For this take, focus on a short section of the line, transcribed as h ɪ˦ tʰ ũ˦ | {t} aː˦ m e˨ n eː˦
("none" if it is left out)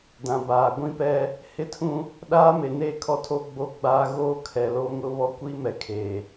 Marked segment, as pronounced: ɗ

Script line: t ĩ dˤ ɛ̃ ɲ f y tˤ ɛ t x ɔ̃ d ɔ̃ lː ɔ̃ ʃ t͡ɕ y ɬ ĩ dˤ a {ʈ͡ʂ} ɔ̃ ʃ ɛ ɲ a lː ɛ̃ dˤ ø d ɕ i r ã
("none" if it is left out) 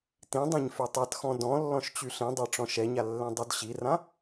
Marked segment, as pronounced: ʈ͡ʂ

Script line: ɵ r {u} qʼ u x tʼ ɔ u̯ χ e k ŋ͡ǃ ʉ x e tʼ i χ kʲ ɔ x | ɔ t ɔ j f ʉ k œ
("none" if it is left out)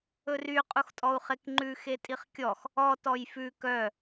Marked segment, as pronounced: y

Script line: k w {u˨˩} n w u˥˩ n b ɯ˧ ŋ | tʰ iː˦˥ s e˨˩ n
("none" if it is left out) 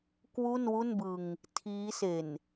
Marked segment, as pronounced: u˥˩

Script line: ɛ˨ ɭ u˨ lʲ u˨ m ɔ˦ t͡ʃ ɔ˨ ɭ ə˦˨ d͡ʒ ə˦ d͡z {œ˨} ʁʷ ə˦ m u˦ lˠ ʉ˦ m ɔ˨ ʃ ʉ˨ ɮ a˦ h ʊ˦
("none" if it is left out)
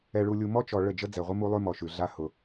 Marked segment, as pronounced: ɛ˨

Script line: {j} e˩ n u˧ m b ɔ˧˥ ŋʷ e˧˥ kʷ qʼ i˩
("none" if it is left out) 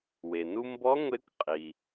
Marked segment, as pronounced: w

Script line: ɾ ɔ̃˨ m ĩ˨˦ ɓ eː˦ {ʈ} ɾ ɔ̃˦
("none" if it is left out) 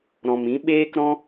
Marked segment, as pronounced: k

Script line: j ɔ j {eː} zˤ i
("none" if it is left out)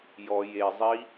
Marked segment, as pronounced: e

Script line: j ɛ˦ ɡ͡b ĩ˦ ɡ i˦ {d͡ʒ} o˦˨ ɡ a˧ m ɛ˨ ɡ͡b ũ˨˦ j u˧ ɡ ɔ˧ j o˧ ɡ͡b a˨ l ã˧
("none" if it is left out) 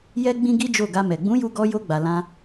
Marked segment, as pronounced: d͡ʒ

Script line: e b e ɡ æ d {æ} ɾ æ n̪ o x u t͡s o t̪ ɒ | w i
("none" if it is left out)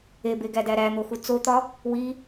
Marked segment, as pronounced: æ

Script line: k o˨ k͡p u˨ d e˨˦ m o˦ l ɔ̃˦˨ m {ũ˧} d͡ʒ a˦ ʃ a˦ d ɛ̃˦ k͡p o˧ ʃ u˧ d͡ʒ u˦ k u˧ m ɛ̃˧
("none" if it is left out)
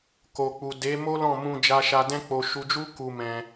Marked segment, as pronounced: ũ˧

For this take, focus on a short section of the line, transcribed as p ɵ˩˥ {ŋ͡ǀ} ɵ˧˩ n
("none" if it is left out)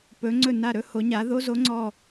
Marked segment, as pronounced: ŋ͡ǀ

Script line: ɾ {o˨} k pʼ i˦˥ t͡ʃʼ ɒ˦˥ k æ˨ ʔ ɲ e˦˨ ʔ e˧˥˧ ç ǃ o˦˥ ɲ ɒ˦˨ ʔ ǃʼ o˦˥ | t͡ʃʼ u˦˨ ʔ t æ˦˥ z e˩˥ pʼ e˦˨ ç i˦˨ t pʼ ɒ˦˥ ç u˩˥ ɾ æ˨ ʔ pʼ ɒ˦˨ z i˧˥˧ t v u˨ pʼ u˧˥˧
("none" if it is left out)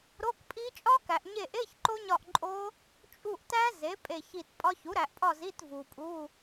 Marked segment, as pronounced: o˧˥˧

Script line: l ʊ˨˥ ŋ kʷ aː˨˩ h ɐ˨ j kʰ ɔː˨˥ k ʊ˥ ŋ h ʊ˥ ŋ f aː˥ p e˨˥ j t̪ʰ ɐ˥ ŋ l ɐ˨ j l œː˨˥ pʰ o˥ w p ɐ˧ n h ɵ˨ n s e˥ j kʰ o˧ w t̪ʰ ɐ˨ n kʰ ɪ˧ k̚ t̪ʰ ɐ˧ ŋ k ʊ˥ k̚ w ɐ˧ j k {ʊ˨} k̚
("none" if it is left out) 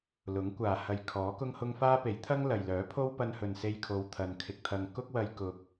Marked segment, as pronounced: ʊ˨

